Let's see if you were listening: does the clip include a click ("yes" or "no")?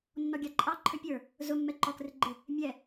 yes